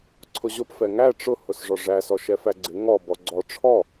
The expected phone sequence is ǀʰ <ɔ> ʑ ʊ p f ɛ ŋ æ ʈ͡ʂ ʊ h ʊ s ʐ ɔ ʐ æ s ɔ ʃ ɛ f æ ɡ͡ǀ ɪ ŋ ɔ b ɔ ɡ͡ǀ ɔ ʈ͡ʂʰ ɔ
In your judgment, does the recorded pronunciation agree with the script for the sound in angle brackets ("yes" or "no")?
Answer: no